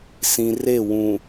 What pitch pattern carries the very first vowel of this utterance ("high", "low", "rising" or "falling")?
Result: low